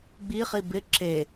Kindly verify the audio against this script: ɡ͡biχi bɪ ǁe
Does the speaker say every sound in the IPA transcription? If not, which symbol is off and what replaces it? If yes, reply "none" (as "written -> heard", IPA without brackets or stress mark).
none